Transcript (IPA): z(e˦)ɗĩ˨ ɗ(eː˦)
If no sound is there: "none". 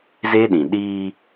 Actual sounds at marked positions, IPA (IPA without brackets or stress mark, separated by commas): e˦, iː˦